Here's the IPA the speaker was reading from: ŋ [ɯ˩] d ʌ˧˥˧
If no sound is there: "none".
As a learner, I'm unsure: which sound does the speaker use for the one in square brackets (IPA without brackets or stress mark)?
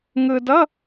ɯ˧